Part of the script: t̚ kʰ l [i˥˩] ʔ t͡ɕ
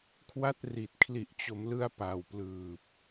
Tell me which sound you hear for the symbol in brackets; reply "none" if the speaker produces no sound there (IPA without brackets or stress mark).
i˨˩